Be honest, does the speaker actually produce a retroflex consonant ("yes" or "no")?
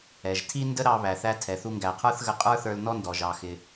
no